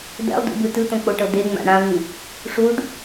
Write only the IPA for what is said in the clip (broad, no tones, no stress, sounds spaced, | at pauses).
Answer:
d̪ ɛ̰ lˠ d ṵ b ɯ t ɯ t̪ õ k͡p o ʈ ɤ d̪ e ŋ͡m a̰ ɽ ã v ĩ | ʂ u ɖ